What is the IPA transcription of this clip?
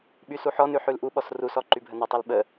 ɓysuħɔnʉ ħʉlʔuɓɔs rusɔ ǃybʱənətˤʉl ɓə

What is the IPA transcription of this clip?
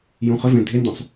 jũχʏvẽ dʱendõsˤ

